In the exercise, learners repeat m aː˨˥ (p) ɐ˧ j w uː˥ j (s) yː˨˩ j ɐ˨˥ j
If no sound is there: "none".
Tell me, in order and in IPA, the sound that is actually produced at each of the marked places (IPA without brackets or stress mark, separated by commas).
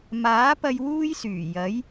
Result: p, s